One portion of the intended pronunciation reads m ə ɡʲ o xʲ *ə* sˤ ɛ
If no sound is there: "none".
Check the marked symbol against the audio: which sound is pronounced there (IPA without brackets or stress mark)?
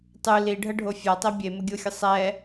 ə